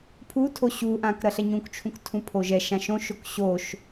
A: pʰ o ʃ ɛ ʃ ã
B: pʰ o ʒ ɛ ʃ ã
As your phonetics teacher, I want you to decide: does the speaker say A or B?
B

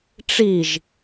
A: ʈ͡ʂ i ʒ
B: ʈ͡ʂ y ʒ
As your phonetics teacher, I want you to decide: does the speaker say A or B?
A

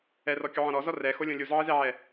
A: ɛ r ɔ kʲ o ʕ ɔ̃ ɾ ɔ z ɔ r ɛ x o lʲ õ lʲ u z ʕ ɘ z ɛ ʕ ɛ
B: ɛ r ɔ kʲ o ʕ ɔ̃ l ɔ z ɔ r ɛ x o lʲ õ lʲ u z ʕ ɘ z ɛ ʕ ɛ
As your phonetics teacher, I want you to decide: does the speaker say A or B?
A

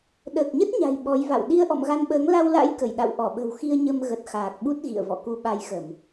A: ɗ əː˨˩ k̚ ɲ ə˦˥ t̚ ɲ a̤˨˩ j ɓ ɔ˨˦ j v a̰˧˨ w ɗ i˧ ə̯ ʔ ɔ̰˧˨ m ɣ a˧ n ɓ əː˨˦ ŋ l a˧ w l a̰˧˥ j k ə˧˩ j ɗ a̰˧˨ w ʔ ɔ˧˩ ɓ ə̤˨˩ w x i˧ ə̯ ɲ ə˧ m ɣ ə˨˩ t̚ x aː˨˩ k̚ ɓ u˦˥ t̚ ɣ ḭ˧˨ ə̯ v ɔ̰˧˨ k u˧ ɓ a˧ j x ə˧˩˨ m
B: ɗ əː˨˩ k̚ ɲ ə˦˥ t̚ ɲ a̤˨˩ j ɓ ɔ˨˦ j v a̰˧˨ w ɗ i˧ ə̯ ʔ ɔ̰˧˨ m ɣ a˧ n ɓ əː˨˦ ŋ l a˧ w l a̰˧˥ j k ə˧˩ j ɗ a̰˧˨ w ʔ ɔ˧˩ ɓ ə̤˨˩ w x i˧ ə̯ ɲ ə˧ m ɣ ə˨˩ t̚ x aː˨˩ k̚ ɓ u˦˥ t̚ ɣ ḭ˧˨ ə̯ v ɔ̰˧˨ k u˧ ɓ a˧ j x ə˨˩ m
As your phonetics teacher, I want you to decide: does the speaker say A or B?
A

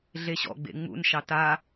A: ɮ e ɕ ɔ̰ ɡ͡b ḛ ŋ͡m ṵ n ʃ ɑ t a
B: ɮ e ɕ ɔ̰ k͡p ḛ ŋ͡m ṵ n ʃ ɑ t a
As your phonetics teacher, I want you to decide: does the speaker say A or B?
A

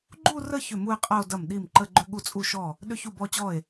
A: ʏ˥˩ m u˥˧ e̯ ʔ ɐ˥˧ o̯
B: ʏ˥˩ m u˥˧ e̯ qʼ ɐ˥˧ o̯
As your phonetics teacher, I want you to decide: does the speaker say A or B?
B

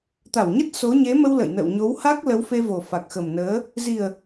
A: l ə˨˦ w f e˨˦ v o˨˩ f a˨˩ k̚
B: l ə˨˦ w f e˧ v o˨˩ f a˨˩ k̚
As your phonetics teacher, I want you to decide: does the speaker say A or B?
B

